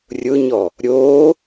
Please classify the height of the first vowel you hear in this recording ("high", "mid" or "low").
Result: high